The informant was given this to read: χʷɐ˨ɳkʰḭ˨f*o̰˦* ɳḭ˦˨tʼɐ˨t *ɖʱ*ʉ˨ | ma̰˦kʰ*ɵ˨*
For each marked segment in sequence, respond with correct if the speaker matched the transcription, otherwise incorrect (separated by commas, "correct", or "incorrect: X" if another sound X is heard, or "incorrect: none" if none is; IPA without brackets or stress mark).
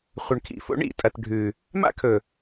correct, correct, correct